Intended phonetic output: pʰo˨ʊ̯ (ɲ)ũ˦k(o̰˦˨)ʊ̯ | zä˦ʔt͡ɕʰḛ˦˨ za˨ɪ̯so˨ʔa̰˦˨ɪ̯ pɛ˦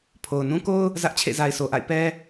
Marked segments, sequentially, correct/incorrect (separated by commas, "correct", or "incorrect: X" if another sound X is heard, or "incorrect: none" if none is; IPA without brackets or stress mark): incorrect: n, incorrect: o˦